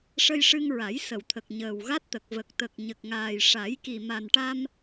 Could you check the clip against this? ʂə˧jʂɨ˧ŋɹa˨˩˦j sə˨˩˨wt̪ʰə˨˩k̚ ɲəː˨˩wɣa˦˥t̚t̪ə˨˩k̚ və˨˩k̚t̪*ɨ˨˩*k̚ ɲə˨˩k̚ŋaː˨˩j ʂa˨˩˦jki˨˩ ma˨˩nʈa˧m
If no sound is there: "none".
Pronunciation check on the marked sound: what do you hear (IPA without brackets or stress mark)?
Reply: ə˨˩